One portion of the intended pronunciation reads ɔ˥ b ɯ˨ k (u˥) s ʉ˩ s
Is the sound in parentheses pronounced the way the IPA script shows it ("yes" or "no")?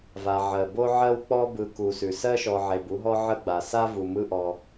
no